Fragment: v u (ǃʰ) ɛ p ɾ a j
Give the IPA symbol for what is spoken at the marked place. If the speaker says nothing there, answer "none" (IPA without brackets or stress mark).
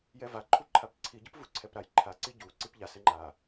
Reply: ǀʰ